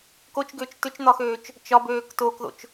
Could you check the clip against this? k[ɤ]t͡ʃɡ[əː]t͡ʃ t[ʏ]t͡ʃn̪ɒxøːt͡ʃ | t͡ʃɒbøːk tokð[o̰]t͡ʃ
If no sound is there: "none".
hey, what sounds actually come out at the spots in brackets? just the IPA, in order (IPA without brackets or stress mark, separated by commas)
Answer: o, ʏː, ʏ, o̰